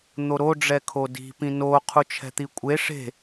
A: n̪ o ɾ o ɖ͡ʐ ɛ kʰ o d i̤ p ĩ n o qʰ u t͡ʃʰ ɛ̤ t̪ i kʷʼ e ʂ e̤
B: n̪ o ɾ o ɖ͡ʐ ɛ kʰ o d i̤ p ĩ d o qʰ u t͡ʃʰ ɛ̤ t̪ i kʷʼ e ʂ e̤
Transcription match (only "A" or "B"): A